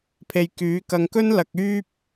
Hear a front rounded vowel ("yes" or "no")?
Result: yes